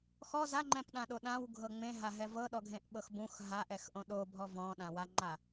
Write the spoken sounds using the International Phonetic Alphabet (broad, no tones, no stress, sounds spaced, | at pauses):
x ɔ z a ŋ͡ǃ ɛ̃ p ɗ ã ɗ o ɗ ã w ɡʱ ɤ ŋ͡m ẽ ɦ a ɦ ɛ v ɤ ɗ ɔ ɡʱ ẽ ʔ ɓ ɤ x b ũ x ɦ a ʔ ɛ x ʔ õ ɗ o bʱ ɔ v ɔ̃ ɗ ã w a ŋ͡ǃ a